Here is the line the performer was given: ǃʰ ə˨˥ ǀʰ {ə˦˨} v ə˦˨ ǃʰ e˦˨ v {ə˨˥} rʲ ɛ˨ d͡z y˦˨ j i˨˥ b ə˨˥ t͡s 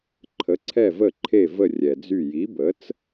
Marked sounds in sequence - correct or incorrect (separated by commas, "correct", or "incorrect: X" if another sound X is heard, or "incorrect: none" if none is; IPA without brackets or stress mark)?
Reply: incorrect: ɛ˦˨, incorrect: ə˦˨